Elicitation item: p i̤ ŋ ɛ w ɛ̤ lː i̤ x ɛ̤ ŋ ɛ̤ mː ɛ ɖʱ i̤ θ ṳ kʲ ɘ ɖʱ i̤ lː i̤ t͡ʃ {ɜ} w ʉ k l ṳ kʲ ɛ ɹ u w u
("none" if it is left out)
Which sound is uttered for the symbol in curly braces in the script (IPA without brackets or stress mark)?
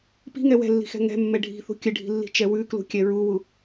ɛ